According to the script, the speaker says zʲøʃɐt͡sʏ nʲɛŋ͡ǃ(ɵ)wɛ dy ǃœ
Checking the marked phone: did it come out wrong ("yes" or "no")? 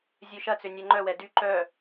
yes